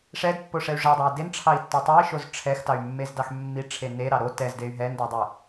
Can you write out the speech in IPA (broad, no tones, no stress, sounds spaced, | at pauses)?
ʂ ɛ d pː o ʂ ɛ y̯ ʐ e dˤ o i̯ d e n ʈ͡ʂʰ ɑ i̯ tː o tˤ o i̯ ʃ o z ʈ͡ʂʰ ɛ x t ɑ y̯ mː e z d ɑ x mː i ʈ͡ʂʰ e n e ɾ ɑ ɾ o t ɛ z d e y̯ ɦ ɛ n d o dˤ e